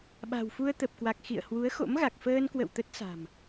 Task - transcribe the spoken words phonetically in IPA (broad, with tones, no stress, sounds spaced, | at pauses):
ɓ a̤˨˩ w f u˧ ə̯ t̪ ə˨˩ p̚ k w a˨˩ k̚ x ḭ˧˨ ə̯ h w u˨˦ ə̯ x o̰˧˥ m ɣ a˨˩ k̚ f əː˧ n k w ə̰˧˨ w t̪ ə˦˥ t̚ s a̤˨˩ m